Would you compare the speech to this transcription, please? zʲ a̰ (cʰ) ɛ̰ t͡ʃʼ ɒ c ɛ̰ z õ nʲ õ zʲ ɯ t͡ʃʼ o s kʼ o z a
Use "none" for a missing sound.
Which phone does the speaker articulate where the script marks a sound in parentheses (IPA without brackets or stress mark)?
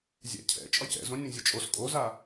cʰ